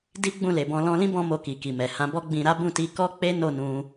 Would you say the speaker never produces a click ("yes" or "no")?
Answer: yes